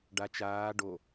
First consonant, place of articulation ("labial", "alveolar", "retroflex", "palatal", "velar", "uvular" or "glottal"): retroflex